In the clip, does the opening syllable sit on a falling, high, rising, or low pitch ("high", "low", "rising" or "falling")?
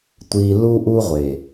low